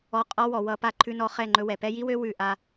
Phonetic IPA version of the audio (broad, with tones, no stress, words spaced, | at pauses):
ɔ˧ qʼɔ˦wɔ˨wʌ˧ pa˧ǃʰʉ˧nɔ˧ χɛ˦˨ŋ͡ǃɵ˧wɛ˨ pɛ˦ ji˦wø˦ wʉ˦˨ ʔa˧